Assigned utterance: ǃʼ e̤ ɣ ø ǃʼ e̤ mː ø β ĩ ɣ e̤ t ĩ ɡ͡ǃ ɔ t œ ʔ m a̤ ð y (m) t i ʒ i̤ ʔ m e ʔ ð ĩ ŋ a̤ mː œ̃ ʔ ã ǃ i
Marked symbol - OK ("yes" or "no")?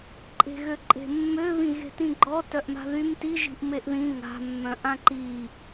yes